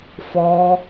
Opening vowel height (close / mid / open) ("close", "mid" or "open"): mid